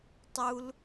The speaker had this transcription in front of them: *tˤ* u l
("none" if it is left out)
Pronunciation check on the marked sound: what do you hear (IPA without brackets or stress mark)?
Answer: tˤ